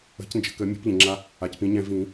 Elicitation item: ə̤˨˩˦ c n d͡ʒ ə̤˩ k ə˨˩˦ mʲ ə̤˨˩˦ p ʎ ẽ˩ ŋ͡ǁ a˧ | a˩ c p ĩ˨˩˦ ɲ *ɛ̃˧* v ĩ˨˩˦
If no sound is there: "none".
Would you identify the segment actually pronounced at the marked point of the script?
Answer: ɛ̃˧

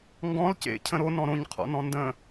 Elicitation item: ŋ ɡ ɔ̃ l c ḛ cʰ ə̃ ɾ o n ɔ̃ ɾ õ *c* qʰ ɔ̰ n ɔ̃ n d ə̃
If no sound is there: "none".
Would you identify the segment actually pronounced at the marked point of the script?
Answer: ɲ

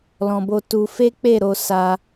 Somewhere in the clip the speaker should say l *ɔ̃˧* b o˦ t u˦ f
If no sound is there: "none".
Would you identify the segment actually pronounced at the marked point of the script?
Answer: ɔ̃˧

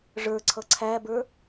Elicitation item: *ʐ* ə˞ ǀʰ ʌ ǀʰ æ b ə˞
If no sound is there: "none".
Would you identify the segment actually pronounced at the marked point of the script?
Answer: ʐ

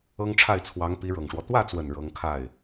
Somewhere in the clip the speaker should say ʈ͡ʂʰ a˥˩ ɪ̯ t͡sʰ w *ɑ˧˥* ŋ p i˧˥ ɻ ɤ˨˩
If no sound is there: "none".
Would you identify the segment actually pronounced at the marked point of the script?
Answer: ɑ˧˥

